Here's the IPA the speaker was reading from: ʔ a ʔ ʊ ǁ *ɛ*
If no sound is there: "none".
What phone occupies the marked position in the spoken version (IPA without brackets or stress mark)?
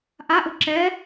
ɛ